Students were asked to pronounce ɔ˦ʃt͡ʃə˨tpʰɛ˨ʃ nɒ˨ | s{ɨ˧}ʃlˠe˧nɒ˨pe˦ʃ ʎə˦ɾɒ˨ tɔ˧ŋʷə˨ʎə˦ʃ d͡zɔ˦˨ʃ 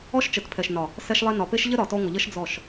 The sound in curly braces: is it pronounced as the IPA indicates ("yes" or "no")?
no